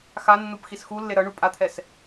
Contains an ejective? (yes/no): yes